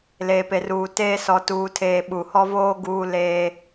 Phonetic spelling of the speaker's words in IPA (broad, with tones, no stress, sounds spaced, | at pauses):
l eː˨ p e˨ r uː˨ t eː˦ s ɔ˨ t uː˨ tʰ eː˨ ɓ u˨ h ɔ˦ v oː˦ ɡ uː˦ l eː˦